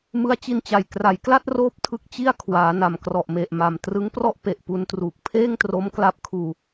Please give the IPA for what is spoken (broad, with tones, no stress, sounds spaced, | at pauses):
m ɯ˦˥ a̯ t͡ɕ i˧ n t͡ɕ a˨˩ j k r a˩˦ j k l a˥˩ t̚ r oː˦˥ p̚ tʰ ɯ˦˥ k̚ t͡ɕ i˥˩ a̯ kʰ w aː˩˦ n a˨˩ m k r ɔ˨˩ ʔ m e˨˩ ʔ m a˨˩ m t r ɯ˦˥ ŋ p r ɔ˥˩ ʔ p e˨˩ ʔ p u˧ n t r uː˨˩ k̚ pʰ eː˥˩ ŋ t r o˦˥ m k l a˦˥ p̚ kʰ uː˧